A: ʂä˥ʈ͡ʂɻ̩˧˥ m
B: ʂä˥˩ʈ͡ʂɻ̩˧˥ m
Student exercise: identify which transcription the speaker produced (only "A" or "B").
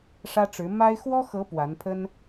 A